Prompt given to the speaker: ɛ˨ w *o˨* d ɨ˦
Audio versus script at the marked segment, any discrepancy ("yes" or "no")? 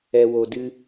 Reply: no